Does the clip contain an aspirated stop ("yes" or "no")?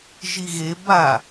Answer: no